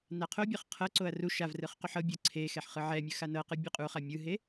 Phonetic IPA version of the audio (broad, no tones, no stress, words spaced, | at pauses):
naqʰobʲɤχ qʰɤǀoɐ̯ ru ʃav rɯχquħɤbʲɤ ǀʰe xɛħχɯʕɛmʲɯ xanɤqɯ bʲɯqʼuχa mʲɯɦe